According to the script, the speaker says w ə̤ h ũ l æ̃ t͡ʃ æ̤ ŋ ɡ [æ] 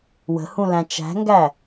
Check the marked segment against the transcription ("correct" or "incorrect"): correct